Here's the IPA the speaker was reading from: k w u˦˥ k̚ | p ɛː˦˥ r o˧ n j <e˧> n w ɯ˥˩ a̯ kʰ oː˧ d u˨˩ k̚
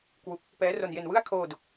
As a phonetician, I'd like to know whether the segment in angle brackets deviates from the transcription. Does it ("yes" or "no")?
no